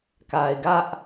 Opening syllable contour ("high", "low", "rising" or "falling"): low